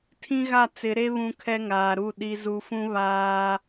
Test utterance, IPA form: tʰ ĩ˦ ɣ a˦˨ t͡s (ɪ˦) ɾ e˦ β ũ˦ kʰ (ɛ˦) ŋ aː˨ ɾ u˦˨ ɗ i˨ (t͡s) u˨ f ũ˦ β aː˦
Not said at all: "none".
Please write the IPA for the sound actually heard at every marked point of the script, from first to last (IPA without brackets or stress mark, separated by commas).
ɪ˨˦, ɛ˦, z